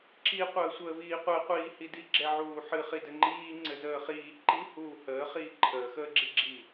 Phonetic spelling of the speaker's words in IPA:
ǁ i qʷ əː sʷ əː v iː qʷ ɛ qʷ iː h i d i ɡ͡ǁ ɛ ʕ uː ħ ɨ χ i d ɘ ŋ͡ǃ iː ŋ͡ǀ ɘ z əː χ iː ǃ i h uː h əː χ iː ǃʰ əː x əː ɡ͡ǁ i ɡ͡ǁ i

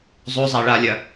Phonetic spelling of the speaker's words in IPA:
zˤ o zˤ a ɭ a lʲ ɐ

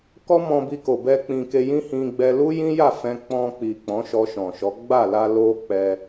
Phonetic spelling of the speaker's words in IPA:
k ɔ˦ m ɔ̃˧ b i˧ k o˨ b ɛ˧ k͡p ĩ˨ k e˧ j ĩ˦ h ĩ˧ ɡ͡b ɛ˧ l u˦ j ĩ˦ j a˦˨ f ɛ̃˧ k͡p ɔ̃˧ k͡p i˨ k͡p ɔ̃˨˦ ʃ ɔ˧ ʃ ɔ̃˨ ʃ ɔ˨˦ ɡ͡b a˦˨ l a˧ l o˦ k͡p ɛ˧

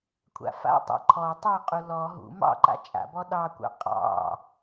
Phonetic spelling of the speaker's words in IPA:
kʷʰ a̰ f a̰ tˤ a̰ ǃʰ ɔ tˤ ɑ qʼ u l ɔ ɦ ṵ m ɑ̰ ǃ a̰ t͡ʃʼ a̰ b ɔ ɗ ɑ kʷ ɑ̰ qʼ ɑ̰

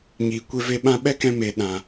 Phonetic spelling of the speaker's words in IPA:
ɲ iː˨ kʷ e˧ v e˧ ɓ ã˧ ɓ ɛ˦ k ɛ̃˧ m e˨ ɗ ã˨

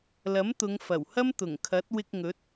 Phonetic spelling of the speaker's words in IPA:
l ɐ˨˥ m t̪ ʊ˨˧ ŋ f ɐ˨˩ w h ɐ˥ m t̪ ʊ˨˩ ŋ kʰ ɐ˨˥ t̚ w ɪ˧ k̚ ŋ ɵ˨˥ t̚

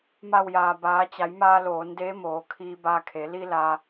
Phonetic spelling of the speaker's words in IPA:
m a˧˩ w j aː˩ b aː˩˧ t͡ɕ a˩˧ j m aː˧ l oː˩˧ n d eː˧˥ m oː˩ kʰ iː˧ b aː˧ kʰ e˩˧ l i˧ l aː˧

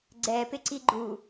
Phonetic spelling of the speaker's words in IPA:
ɡ͡ǀ ɛ p ɪ ǀ i ɡ͡ǃ u

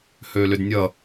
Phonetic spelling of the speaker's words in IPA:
h ø l ʏ d nʲ ʌ

